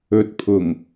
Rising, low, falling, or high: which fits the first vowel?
rising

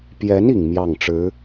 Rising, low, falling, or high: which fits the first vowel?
rising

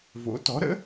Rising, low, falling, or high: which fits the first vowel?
rising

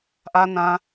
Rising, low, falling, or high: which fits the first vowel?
low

